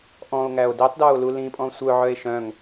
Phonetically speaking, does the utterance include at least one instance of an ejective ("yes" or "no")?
yes